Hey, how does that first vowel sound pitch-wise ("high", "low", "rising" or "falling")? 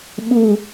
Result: low